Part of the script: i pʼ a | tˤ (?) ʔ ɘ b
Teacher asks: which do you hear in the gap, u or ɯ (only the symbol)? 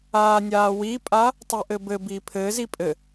u